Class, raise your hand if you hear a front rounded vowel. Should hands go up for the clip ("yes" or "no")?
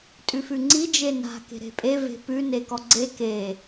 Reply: no